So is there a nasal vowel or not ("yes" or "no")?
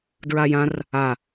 yes